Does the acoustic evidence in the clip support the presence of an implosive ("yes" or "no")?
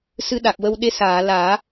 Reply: yes